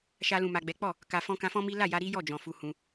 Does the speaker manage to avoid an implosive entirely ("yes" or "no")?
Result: yes